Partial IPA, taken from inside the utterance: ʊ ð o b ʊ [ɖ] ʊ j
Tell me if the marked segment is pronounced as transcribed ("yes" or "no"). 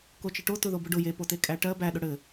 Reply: yes